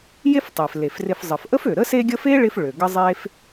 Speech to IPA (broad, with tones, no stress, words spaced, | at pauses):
je˦ftˤe˩fle˩frɪ˨f zˤə˩fʔə˥fø˩ɾə˥ se˦ɡʲə˦fe˥ ɭɪ˥fɭø˩ ɡə˥zˤe˥f